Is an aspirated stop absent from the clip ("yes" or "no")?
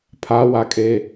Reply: no